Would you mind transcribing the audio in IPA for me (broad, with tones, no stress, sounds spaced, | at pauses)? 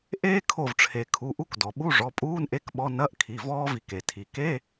ʔ eː˥ kʰ o˧˩ v ʈ͡ʂʰ e˩ kʰ u˩˧˩ ʔ u˧˥˧ k d ɔ˩ ɓ u˧˥˧ ʐ ɔ˩˧˩ pʼ uː˧˥˧ n ʔ e˧˥˧ k ɓ ɔ˧˥˧ n ɐ˧˥˧ ʔ kʰ i˩˧˩ v ɔː˥ v i˧˩ k e˩ tʰ i˩ k e˧˥˧